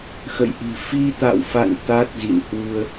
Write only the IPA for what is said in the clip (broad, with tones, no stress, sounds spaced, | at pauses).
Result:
x ə̰˧˨ j ʔ i̤˨˩ f i˧ t̪ a̰˧˨ w f a̰˧˨ n t̪ a˦˥ t̚ z ḭ˧˨ n h w u˧ ə̯